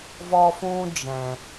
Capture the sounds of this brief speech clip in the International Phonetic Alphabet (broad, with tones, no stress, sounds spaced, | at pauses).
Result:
v ɔ˦ f ũ˦ d͡ʒ ɛ̃˨